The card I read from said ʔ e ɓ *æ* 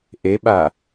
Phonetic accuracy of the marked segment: incorrect: a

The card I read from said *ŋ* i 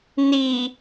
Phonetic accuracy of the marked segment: incorrect: n̪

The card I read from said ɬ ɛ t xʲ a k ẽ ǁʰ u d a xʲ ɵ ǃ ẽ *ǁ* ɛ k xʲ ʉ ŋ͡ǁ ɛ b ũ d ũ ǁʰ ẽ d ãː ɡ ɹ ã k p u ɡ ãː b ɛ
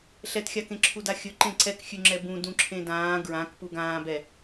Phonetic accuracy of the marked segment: incorrect: ǀ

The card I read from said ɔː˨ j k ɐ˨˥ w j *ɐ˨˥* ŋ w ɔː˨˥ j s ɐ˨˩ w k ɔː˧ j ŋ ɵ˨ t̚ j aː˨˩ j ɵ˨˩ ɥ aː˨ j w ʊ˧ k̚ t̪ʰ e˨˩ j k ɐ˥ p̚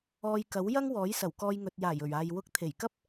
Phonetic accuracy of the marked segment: incorrect: ɐ˥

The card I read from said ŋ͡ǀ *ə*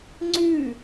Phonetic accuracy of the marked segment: incorrect: ʉ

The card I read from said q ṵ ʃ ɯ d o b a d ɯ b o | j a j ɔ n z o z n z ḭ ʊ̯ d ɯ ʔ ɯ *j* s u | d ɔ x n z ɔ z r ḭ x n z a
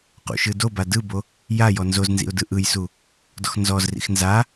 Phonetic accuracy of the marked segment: correct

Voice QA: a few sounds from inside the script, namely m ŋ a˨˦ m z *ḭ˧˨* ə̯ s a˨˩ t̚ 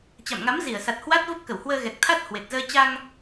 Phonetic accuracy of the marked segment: incorrect: i˧˩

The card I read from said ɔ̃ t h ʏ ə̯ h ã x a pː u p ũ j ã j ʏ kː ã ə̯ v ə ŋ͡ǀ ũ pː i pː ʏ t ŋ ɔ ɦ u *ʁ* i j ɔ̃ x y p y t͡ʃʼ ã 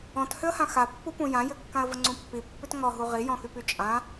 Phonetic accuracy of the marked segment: correct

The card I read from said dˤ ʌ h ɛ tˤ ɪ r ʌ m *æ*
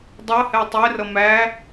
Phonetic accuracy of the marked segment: correct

